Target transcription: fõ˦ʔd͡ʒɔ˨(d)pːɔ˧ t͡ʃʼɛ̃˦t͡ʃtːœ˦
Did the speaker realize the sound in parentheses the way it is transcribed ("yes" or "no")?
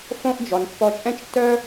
no